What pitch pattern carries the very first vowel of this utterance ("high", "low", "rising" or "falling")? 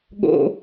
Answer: low